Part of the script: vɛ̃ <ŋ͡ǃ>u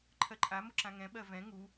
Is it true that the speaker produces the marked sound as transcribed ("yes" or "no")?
no